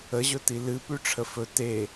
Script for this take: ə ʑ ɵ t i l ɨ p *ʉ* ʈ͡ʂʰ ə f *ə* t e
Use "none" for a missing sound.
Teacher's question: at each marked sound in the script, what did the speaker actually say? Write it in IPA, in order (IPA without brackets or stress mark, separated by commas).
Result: ʉ, ɵ